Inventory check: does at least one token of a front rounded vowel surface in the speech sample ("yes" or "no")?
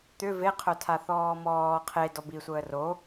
yes